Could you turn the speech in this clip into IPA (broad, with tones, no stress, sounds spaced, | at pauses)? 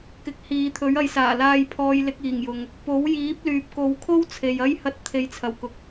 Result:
k ɪ˨˥ k̚ h iː˨˧ t̪ʰ ɵ˨˥ ɥ ɐ˨˧ j s aː˨˩ l aː˧ j pʰ ɔː˨˧ j l ɪ˧ k̚ iː˨˩ ŋ j ʊ˨ ŋ | p o˨˥ w j iː˨˥ p̚ l yː˨ p̚ k o˨˧ w kʰ o˥ w t͡sʰ e˨ j ɐ˥ j h ɐ˧ t̚ t̪ʰ e˨˧ j t͡sʰ ɐ˨˩ w k ʊ˨ k̚